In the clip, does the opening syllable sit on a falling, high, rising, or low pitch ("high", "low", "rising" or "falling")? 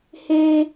high